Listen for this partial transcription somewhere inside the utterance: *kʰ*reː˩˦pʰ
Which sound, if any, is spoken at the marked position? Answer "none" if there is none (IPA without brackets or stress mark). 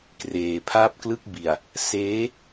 k